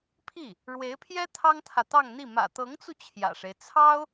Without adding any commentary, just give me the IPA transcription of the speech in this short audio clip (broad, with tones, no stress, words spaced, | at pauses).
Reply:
pʰi˥˩ | ɻwe˧˥ɪ̯pʰjɛ˥ t̪ʰɑ˥ŋt̪ʰä˨t̪ɑ˥˧ŋn̪i˥˩ mä̰˨˩t̪ɤ˧˥ŋt͡su˧ t͡ɕʰjä̰˨˩ʂe˦ɪ̯ t͡sʰɑ˥ʊ̯